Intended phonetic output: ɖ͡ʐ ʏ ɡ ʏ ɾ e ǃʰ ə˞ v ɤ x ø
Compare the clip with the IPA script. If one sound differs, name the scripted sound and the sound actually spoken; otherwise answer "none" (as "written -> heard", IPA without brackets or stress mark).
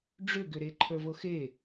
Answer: ø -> e